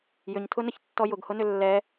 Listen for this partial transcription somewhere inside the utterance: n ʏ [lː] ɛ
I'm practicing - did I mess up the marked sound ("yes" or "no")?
no